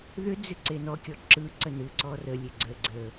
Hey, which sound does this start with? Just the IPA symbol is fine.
ð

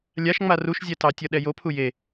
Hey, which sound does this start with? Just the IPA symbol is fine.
lʲ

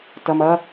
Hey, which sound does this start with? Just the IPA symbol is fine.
t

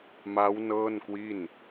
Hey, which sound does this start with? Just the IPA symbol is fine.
m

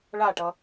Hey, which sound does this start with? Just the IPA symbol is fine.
ɭ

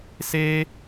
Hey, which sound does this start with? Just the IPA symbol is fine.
s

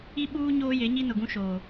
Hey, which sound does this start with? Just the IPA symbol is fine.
i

